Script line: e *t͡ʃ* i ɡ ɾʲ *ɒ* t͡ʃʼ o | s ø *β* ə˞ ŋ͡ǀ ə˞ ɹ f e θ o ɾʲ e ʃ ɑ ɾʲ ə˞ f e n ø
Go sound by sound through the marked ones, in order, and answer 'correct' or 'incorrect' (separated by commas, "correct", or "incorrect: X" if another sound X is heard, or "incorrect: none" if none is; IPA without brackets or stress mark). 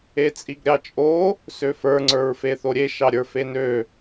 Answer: incorrect: t͡sʼ, incorrect: ɑ, incorrect: f